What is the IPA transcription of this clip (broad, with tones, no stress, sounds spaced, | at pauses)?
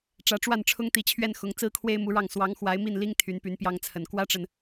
ʈ͡ʂ ä˧˥ ʈ͡ʂ w a˥˩ n ʈ͡ʂʰ ʊ˥ ŋ t̪ i˧˥ t͡ɕʰ ɥ ɛ˥˩ n x ʊ˧˥ ŋ t͡s ɹ̩˥ kʰ w e˥ ɪ̯ m u˧˥ ɻ ɑ˥˩ ŋ s w ɑ˧˥ ŋ x w a˧˥ ɪ̯ m i˥˩ n l i˥ ŋ t̪ʰ y˧˥ n p y˧˥ n p j ɑ˥ ŋ t͡sʰ ə˨˩ n k w ä˥ ʈ͡ʂ ə˨ n